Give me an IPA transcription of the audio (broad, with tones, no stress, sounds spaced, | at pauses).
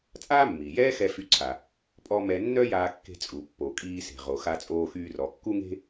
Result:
t͡sʼ aː˥ mː iː˩ j ɛː˥ x ɛ˧ f y˧ ǀʰ a˩ | pʼ ɔ˥ m ɛ˧ nː œ˥ j aː˧ kː e̤˧ t͡sʼ u˩ pː o˩ kʼ iː˧ s e̤˩ ʁ o˩ x a˧ t͡sʼ oː˧ x yː˧ r ɔ˩ kː u˥ ŋ e̤˥